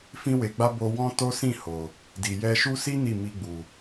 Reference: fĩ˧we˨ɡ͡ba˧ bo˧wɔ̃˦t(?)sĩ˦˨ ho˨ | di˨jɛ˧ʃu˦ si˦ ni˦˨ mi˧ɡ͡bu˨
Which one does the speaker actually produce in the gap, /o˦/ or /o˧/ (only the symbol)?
o˦